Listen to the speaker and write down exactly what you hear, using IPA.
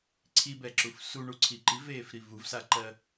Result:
ǀʰ i b ɛ ǁ u f s u ɳ u ǀʰ i ǃ i v eː f ɾ i v u v s a ǃ ɜ

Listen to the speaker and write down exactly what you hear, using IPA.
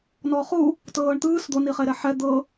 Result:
n ɔː χ u | t ɤː ɳ t̪ ɯː s d̪ o n i χ e ɾ ɛ ħ ɛ d̪ ɤ

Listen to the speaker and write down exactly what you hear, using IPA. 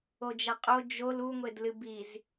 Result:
o d͡ʒ ɐ qʼ o d͡ʒ o l u ŋʷ e d l ɨ b i z

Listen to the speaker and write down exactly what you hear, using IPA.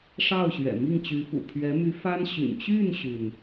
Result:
ʂ ɑ˥˩ ʊ̯ ɕ ɥ ɛ̰˨˩ m i˥˩ ŋ t͡ɕ y˧˥ f ṵ˨˩ pʰ ɥ ɛ˧˥ m y˧˥ f a˥ n ɕ y̰˨˩ n t͡ɕ y˥˩ n ɕ y˩ n

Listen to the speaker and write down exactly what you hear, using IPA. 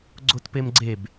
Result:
ɡ͡ǀ o t p e m ɡ͡ǀ e b

